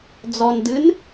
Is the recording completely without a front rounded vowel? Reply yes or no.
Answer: yes